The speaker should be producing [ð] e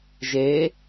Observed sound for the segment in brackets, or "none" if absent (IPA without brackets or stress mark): ʒ